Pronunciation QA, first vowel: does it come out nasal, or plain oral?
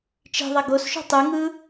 oral